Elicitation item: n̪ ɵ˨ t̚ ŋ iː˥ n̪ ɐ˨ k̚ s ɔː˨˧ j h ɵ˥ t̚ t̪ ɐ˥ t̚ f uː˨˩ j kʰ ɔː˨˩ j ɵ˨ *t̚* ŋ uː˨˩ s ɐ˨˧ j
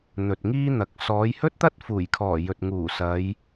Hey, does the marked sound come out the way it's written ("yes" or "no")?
yes